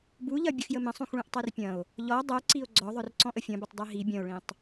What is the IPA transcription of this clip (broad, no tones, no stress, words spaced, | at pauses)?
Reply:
buʎɐ bʲəxjəmɐ̃sˤũx ɭũʔtˤerpʲɐ̃o̯ | ʎɔ dˤœǀio̯ ɡ͡ǀɔðˤœr ǀɔ̃ʔəfʲɐ̃bətˤ dˤeɦi bʲɐ̃o̯ɭĩtˤ